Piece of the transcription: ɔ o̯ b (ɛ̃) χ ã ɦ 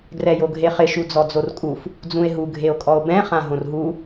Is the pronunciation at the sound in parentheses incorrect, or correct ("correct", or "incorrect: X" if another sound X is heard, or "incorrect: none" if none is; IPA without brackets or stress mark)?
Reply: correct